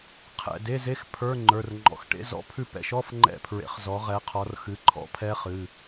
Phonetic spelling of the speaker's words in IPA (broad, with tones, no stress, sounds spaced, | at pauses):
qʰ ɛ̰˩˧˩ d e˧˥˧ z e˧˥˧ x pʰ ə˞˧˥˧ ŋ͡ǃ ə˞˩˧˩ r ŋ͡ǃ ɔ̰˨˦ x ʈ ḛ˧˥˧ z ɔ̰˧˥˧ pʰ ʉ˦˨ p ɛ̰˧˥˧ ʃ ɔ˧˥˧ f ŋ͡ǃ ɛ̰˦˨ pʰ ɹ ḛ˨˦ χ z ɔ˨˦ ʁ ɛ˨˦ qʰ ɔ˨˦ r x ɨ˨˦ ǃʰ ɔ̰˦˥ pʰ ɛ˦˥ χ ɨ˩˧˩